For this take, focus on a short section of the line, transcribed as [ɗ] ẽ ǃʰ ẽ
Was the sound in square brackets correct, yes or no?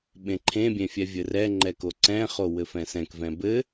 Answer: no